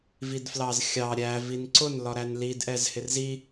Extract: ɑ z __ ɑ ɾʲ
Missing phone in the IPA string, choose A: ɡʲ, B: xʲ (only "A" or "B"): B